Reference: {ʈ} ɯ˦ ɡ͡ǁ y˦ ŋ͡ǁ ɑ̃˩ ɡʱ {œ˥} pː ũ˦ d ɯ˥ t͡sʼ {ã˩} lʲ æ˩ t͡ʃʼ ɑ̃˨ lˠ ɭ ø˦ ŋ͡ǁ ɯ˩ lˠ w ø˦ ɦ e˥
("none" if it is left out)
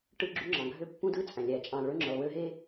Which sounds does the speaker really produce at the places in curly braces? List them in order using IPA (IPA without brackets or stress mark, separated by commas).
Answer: ʈ, ø˥, æ̃˩